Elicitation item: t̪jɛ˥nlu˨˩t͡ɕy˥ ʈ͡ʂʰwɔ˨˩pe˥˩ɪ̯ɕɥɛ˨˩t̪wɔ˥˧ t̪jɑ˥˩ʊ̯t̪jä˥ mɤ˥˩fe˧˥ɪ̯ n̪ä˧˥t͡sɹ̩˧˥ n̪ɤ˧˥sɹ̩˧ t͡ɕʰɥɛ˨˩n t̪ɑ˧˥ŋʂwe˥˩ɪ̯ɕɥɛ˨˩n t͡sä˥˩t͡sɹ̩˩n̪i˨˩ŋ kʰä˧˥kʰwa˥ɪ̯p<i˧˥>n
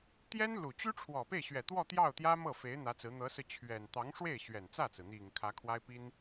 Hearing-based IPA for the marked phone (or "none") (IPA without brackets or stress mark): i˥